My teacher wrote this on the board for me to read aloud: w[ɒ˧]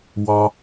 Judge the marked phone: correct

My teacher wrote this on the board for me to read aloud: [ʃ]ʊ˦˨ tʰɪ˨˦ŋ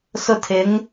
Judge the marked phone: incorrect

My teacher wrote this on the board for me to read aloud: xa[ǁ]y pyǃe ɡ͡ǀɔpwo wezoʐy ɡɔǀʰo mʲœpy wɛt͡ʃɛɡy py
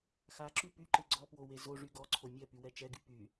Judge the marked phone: correct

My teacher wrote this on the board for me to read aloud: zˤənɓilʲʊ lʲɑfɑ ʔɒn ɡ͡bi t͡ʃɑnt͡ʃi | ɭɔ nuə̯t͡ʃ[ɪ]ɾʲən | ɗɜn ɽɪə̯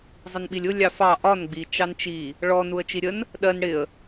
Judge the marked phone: incorrect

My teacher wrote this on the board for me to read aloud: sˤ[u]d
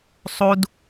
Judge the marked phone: correct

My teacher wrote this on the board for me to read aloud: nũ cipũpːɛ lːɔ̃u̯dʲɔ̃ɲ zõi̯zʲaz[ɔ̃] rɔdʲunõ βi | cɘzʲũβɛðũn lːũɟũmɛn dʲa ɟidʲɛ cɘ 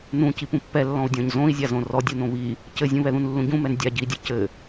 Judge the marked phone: incorrect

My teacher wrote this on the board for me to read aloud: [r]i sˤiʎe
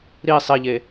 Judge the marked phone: incorrect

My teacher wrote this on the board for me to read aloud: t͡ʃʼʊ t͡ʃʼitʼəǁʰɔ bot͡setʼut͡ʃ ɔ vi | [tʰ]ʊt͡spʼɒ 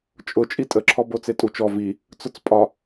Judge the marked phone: incorrect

